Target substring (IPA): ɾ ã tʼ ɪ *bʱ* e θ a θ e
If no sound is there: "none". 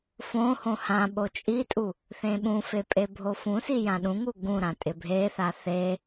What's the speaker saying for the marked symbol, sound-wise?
bʱ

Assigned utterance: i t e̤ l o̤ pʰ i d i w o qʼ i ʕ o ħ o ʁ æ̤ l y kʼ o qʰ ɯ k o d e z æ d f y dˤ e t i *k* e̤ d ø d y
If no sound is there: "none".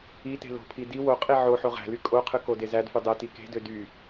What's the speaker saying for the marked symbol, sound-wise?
k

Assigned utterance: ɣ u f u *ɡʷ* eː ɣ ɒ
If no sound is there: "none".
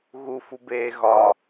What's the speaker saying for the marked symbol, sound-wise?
b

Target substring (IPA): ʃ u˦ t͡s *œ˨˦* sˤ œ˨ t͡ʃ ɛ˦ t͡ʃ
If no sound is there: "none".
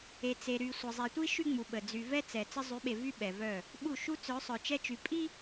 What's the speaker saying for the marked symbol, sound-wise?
œ˨˦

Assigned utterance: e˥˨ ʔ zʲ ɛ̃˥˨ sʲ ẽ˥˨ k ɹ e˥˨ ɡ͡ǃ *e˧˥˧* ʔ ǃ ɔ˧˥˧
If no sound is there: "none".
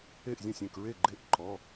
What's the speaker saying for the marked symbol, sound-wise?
e˥˨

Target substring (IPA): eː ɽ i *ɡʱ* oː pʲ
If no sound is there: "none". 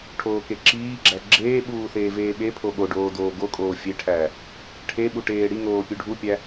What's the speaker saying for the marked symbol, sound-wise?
ŋ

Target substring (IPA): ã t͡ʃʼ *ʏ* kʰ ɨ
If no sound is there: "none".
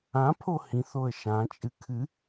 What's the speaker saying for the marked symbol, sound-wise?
ɨ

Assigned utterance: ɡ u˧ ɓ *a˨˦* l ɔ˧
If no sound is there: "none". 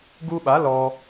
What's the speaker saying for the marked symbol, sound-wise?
a˨˦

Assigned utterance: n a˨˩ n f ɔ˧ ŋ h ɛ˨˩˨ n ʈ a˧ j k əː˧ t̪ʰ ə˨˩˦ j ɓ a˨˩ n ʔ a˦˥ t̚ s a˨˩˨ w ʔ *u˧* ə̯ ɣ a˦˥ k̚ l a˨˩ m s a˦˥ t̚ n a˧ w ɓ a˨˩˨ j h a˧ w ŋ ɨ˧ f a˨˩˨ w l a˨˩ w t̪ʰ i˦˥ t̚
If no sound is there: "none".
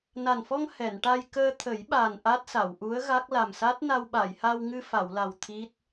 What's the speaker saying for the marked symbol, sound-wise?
u˧˥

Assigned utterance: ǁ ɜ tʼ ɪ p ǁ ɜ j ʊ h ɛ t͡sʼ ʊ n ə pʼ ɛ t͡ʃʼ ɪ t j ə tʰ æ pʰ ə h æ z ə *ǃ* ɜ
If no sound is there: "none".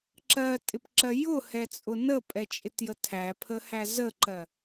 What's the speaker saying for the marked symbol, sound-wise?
ǃ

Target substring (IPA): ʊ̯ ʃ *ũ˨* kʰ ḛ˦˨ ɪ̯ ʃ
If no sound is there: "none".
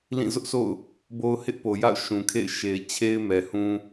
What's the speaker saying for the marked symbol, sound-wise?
ũ˨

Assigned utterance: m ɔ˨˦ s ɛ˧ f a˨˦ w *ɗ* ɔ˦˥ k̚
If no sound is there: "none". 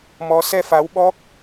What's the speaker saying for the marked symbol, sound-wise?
ɓ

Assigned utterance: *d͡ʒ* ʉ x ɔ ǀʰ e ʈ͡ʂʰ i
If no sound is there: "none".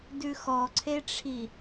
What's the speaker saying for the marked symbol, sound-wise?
d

